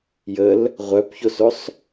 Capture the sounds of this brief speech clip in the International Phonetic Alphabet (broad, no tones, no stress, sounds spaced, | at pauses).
j ə l | ʁʷ œ p ç o s o sˤ